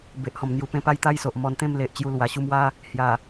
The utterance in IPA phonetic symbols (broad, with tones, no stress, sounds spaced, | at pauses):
b e˨ ʔ h ɔ̃˨˩ m n̪ j u˨˩ p ẽ˥˧ p a˥˧ j t̪ a˥˧ j s o˨ ʔ m ɔ˧ n t̪ ẽ˥˧ m l e˨ ʔ t͡ɕ j u˧ l w a˨˩ ɕ u˥˧ m w a˦ | h j a˨˩